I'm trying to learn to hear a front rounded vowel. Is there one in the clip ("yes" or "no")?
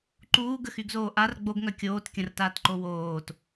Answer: yes